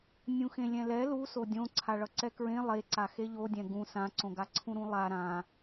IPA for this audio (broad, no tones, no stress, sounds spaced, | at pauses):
nʲ ũ x ẽ lʲ ɛ̃ l ɛ l u s o dʲ õ ǀʰ a ɭ ʌ ǀ ɛ k ɹ ẽ lˠ e ǀ a x e ʎ o dʲ ɛ̃ ɡ ũ s ã ǀ õ ɡ a ǀʰ ũ ɾ ũ lˠ a ɾ ã